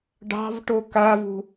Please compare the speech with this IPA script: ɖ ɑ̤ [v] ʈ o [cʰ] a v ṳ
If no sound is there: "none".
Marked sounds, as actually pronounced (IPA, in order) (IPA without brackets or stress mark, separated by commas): v, k